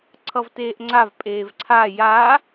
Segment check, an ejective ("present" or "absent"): present